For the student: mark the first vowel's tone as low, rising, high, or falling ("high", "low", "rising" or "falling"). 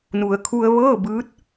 low